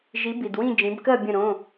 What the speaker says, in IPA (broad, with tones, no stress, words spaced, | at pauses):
ʒi˨˥bi˨dwĩ˥˨ d͡ʒĩ˨˥bkɜ˥˨ bʲə̃˥˨ɾõ˧˥˧